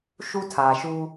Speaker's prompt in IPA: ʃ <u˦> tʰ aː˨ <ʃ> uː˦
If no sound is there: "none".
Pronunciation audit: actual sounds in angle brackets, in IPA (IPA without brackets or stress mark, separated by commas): u˦, ʃ